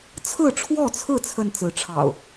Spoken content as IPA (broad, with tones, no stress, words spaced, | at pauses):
t͡sʰɹ̩˥˨ʈ͡ʂʰwɔ˥˨t͡sʰɹ̩˥˨ t͡sʰə˥˨nt͡sɹ̩˨˦ʈ͡ʂʰɑ̰˨˩ʊ̯